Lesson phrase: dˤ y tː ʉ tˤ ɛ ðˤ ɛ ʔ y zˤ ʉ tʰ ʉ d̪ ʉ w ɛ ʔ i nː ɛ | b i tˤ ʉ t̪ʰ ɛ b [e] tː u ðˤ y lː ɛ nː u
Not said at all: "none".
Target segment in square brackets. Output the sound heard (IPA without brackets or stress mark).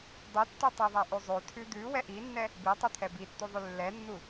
i